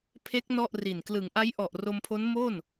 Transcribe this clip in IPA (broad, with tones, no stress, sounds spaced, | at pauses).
pʰ e˦˥ k̚ n ɔ˥˩ ʔ r i˨˩ n k l ɯ˩˦ ŋ ʔ a˦˥ j ʔ ɔ˨˩ ʔ r o˧ m pʰ o˦˥ n m o˥˩ n